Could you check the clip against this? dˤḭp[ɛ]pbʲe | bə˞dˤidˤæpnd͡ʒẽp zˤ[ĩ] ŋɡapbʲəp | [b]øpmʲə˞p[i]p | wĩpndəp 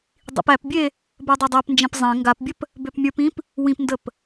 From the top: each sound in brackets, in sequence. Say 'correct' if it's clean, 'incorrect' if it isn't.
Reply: incorrect: æ, incorrect: ẽ, correct, incorrect: ĩ

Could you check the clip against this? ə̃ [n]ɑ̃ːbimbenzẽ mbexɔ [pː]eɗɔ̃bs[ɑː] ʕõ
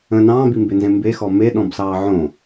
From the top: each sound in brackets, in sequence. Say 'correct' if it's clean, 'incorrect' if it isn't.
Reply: correct, incorrect: m, correct

